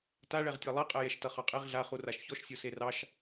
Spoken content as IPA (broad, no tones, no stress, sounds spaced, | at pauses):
t a ɭ ɛ ʁ tʲ ɑ lˠ e qʼ ɛ j ɛ ʃ t ʌ χ ɑ qʼ e ʁ ɮ a χ u r a ʃ ç ɔ ʃ sʲ o s e r ɑ ʃ